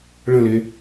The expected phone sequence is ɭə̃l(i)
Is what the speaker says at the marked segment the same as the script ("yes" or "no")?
no